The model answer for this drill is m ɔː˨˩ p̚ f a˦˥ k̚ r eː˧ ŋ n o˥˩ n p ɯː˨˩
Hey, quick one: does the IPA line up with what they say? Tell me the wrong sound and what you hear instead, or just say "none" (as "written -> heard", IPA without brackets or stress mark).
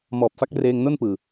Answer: none